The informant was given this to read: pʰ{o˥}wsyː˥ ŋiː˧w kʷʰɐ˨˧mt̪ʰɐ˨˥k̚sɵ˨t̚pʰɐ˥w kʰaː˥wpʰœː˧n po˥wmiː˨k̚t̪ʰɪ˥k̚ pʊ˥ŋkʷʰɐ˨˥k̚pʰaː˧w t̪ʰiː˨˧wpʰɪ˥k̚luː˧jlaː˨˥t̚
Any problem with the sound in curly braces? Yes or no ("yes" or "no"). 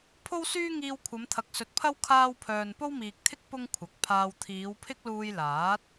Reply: no